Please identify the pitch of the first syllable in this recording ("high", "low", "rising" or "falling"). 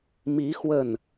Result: rising